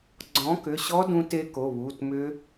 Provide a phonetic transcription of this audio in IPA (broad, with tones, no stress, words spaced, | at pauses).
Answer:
ɡ͡ǀɔ̃˨˥kʏ˩˧˩ɕɔ˦˥ dũ˦˥te˦˥ko˩˧˩ βu˩˧˩tmʏ˦˥